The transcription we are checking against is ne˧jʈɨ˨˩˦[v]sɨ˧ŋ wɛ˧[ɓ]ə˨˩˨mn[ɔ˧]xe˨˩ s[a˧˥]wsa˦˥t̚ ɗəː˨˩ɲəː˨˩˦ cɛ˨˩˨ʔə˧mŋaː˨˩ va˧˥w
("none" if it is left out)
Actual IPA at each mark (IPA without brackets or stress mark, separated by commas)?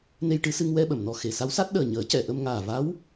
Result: none, ɓ, ɔ˨˩, a˧˥